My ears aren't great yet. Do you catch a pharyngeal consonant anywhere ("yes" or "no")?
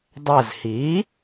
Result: no